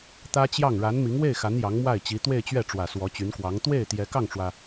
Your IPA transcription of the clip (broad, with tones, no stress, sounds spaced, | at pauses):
t̪ ä˥ t͡ɕ j ɑ˥˩ ŋ ɻ a˧˥ n m i˧˥ ŋ w e˥˩ ɪ̯ x a˧˥ n j ɑ˧˥ ŋ m w a˥˩ ɪ̯ t͡ɕ i˧˥ t̪ w e˥˧ ɪ̯ t͡ɕ ɥ ɛ˥˩ ʈ͡ʂ w ä˨˩ s w ɔ˧˥ t͡ɕ y˧˥ n k w ɑ˧˥ ŋ t̪ w e˥˩ ɪ̯ t̪ j ɛ˧˥ k ɑ˥˩ ŋ ʈ͡ʂ w ä˩